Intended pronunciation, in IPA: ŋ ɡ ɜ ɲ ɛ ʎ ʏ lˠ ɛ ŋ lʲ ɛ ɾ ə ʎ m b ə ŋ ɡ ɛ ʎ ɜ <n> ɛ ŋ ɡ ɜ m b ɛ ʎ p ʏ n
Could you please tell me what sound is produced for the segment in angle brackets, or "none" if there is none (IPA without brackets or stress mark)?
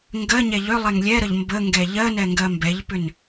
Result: n